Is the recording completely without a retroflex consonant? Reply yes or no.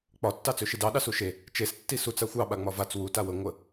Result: yes